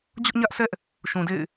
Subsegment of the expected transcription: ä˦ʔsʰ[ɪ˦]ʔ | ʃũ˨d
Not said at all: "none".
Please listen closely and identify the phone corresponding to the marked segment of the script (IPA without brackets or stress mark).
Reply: ɛ˦